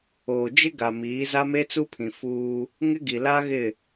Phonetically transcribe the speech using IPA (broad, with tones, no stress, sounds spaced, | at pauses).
oː˨ d͡ʒ ɪ˦ ɡ a˨ m iː˨˦ z a˦ m e˦ t͡s u˦ pʰ ĩ˨ f uː˦ | ŋ ɪ˦ ɡ i˨ l aː˦ ɣ ɪ˦˨